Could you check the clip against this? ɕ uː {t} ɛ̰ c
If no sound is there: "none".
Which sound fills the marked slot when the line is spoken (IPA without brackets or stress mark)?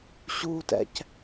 t